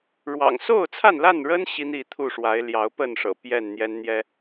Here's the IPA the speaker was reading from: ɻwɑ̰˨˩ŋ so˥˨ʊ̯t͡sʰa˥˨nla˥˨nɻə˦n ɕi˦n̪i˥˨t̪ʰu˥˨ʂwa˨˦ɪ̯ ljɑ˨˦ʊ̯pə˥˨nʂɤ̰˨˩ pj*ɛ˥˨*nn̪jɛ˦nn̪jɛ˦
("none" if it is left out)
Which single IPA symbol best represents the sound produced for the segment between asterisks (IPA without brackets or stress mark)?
ɛ˥˨